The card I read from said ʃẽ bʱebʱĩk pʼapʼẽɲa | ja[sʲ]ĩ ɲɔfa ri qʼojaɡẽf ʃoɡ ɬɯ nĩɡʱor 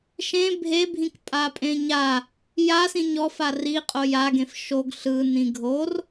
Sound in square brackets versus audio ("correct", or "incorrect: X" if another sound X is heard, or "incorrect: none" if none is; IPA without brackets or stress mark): incorrect: s